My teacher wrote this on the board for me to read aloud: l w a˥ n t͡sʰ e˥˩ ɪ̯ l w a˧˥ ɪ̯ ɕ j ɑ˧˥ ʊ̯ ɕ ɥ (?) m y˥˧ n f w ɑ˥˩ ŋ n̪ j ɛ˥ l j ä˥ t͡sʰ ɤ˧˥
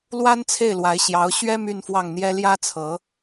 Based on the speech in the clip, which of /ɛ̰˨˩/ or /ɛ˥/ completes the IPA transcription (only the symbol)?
ɛ˥